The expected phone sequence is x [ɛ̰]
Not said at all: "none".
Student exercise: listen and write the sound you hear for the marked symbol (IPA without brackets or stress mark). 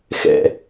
ɛ̰